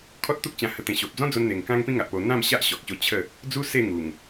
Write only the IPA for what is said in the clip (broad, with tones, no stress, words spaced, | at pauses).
kʰɔ˦t̚t̪u˦k̚t͡ɕã˧hə˧ t̪ẽ˧ ɕo˨p̚d͡zɔ̃˦ d͡zo˦nn̪e˧ŋ kã˦ŋpĩ˦ŋa˨ʔpo˧ n̪ã˥˧mɕa˦ʔɕɔ˨k̚ɕo˧ t͡ɕʰə˥˧ | d͡zu˦ se˥˧ ŋu˨˩ŋ